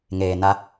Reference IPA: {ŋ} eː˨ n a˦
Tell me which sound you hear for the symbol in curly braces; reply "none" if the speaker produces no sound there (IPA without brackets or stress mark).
ŋ